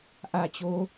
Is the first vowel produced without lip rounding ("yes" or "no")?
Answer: yes